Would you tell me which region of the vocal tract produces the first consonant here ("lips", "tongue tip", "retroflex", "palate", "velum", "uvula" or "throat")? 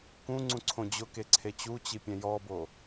velum